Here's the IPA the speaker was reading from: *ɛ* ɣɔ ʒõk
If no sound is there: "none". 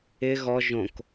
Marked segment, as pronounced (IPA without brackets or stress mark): ɪ